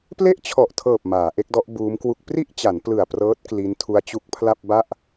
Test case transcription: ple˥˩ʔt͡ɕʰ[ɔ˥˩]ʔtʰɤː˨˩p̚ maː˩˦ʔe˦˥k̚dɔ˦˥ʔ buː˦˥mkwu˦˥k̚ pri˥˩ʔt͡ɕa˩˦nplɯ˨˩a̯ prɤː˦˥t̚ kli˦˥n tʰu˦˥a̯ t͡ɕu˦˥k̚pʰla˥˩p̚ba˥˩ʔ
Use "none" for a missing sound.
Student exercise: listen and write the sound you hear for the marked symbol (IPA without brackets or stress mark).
ɔ˨˩